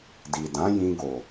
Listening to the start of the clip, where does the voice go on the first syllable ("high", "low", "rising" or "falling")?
low